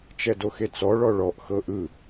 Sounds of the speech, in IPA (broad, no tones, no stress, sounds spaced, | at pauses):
t͡ʃ ɛ d o x e t͡s ɔ ɭ ɔ ɭ ɔ ʔ x ɤ ʔ ɯ